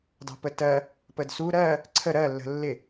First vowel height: low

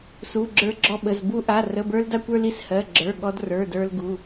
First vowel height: high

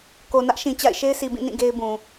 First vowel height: mid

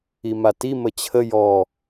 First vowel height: high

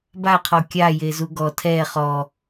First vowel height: low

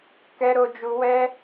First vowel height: mid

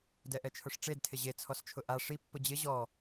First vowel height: mid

